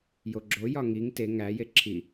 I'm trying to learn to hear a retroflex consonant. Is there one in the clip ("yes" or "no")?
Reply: no